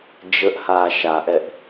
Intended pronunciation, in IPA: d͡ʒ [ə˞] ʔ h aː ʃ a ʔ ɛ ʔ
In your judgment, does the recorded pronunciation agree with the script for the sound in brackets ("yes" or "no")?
no